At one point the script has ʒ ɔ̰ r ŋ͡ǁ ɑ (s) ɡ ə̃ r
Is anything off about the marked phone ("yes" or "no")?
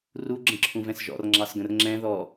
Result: no